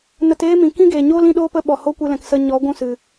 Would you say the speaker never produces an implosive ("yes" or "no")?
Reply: no